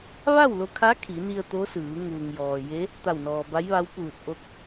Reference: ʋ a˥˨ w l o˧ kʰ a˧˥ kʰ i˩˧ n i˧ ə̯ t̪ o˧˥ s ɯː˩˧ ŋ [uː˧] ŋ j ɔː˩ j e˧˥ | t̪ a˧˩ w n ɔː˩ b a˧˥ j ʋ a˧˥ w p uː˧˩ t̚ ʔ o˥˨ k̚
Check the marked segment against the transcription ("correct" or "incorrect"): incorrect